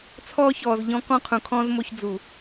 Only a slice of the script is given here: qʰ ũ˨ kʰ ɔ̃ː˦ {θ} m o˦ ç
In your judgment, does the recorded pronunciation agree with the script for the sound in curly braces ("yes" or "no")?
no